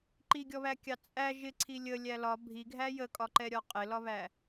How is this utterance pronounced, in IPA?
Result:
ǃ i ɡʲ ɔ β æ kʲ ɑ t͡sʼ æ ʒ ɪ ǀʰ i lʲ ə lʲ æ l ɒ bʱ i ɡʱ æ j ə kʼ ɒ ǃ ɛ ɾʲ ɒ qʼ ɪ l ɒ β æ

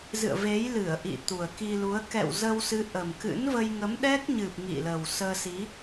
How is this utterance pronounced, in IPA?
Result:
z ɨ̰˧˨ ə̯ v e˨˦ j l ɨ˧˩ ə̯ ʔ ḭ˧˨ t̪ u˨˩ ə̯ k i˧ l u˨˦ ə̯ k ɛ̰˧˨ w z ə˧ w s ɨ˨˦ ʔ ə˨˩ m k ɨ̰˧˥ n v ə˧ j ŋ ə˨˦ m ɗ ɛ˦˥ k̚ ɲ ɨ˨˩ p̚ ŋ ḭ˧˨ l ə˨˩ w s əː˧ s i˨˦

